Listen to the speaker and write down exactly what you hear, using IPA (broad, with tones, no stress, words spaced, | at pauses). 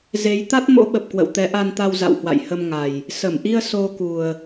ze˨˦j t̪a˦˥t̚mo̰˧˥ɓə˨˩p̚ kwə̰˧˨wt̪ɛ˨˦ʔa˧n t̪a˧wza̰˧˨w hwa̰˧˨j hə˧mŋa˨˩j | sə˧˩mʔi˧ə̯ so˧ku˨˩ə̯